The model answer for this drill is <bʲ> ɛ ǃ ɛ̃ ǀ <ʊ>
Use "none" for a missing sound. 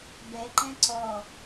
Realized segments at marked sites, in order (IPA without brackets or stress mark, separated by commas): b, ɔ